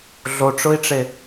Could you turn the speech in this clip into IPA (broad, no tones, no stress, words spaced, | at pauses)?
ɮoʈ͡ʂʊi̯ʈ͡ʂe